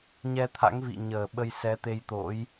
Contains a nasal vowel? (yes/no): no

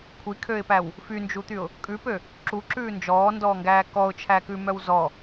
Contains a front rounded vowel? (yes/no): yes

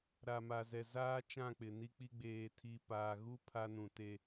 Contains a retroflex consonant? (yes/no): no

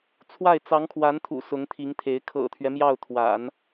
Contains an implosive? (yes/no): no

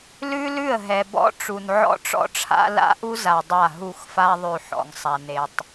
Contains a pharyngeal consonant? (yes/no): yes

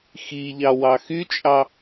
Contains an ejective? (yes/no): yes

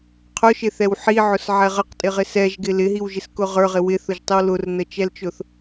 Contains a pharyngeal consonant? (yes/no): yes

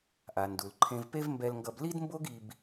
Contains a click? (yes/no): yes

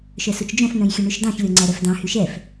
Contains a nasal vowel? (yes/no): yes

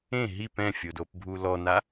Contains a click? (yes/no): no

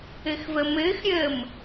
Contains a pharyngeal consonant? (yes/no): no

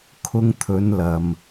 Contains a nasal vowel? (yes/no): no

